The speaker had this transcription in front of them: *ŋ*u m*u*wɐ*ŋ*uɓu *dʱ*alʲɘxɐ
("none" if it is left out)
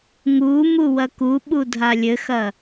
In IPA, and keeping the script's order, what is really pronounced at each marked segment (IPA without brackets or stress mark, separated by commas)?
ŋ, u, k, dʱ